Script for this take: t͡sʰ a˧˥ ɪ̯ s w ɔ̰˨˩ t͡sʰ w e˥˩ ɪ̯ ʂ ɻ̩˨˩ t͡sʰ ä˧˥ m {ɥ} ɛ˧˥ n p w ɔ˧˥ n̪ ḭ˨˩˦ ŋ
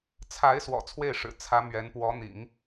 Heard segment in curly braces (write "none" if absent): ɥ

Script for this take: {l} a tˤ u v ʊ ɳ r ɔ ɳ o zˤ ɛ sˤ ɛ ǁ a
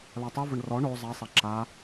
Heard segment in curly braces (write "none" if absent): l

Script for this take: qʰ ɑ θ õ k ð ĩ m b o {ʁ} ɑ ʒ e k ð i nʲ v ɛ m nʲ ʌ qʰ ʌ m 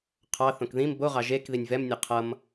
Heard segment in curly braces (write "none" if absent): ʁ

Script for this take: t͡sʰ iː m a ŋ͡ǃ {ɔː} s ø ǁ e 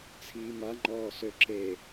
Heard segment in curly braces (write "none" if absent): ɔː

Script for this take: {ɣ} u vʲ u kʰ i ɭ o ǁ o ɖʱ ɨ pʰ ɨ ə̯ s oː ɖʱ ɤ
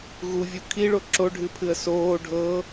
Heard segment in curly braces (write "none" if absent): ɣ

